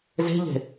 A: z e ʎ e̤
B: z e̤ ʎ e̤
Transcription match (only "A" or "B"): B